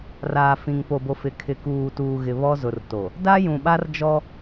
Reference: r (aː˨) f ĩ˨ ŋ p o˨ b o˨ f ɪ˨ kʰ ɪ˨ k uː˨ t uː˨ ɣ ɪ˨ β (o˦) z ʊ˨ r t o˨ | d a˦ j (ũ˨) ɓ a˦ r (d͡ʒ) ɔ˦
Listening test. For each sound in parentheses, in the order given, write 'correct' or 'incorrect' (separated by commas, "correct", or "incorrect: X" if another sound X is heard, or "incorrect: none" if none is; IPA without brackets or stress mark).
correct, incorrect: ɔ˦, correct, correct